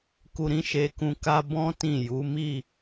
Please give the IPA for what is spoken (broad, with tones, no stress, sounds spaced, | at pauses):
k u˧ ɾ ĩ˦ ʃ e˧ k ũ˧ k a˧ b ɔ̃˦ t ĩ˦˨ j u˨˦ m i˦˨